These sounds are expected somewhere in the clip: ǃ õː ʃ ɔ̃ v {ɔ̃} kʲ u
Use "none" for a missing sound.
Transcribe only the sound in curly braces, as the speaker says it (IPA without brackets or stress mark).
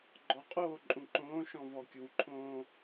ɔ